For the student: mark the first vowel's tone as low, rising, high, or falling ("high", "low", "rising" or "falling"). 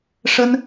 high